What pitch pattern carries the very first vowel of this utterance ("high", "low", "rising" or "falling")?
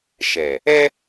low